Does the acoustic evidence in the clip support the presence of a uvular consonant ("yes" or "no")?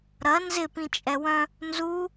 no